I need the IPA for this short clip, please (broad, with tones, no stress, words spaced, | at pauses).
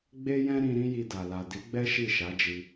ɡ͡be˦jɛ̃˦ ɾĩ˧ ɾĩ˦ji˧da˨ la˨di˨˦ɡ͡bɛ˦ ʃi˦˨ʃa˨˦d͡ʒi˧